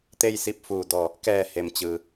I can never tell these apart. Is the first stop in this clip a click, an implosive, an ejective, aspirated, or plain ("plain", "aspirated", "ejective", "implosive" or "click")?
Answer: plain